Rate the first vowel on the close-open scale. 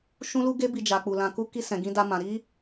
close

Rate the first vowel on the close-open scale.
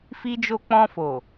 close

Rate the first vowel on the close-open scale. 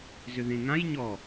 close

